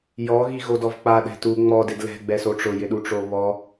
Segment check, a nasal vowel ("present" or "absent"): absent